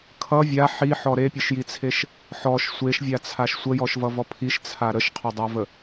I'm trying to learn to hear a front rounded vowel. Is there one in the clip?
no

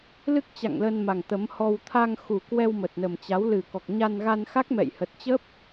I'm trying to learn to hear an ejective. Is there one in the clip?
no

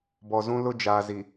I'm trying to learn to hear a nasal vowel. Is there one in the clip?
yes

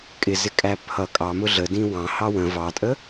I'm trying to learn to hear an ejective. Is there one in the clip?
yes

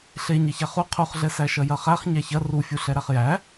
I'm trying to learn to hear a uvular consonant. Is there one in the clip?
yes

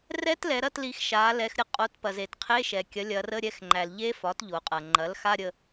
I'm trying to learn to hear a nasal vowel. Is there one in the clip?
no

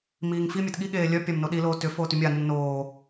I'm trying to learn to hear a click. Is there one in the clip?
no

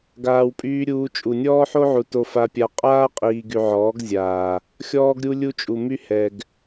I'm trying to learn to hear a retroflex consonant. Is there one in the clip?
no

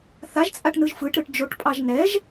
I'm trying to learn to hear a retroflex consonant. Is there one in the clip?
yes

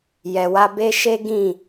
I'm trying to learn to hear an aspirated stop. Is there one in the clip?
no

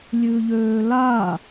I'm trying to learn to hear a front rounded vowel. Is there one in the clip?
yes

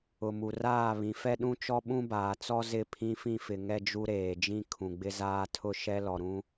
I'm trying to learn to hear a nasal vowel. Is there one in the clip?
yes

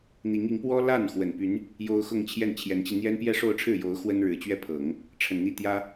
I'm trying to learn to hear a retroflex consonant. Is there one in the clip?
yes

